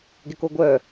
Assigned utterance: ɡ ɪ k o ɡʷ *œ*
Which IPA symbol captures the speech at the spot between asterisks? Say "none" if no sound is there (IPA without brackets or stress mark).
œ